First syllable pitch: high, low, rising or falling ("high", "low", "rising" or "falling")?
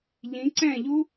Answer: rising